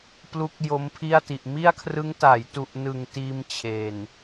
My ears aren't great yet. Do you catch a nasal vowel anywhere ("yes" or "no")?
no